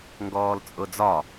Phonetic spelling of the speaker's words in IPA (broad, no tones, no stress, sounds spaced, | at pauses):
ŋ ɡ ɔː l t͡sʼ ʊ d͡z ɒ